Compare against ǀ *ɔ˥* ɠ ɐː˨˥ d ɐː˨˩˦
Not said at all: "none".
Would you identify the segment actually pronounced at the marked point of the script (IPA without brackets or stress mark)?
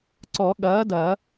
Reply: ɔ˨˩˦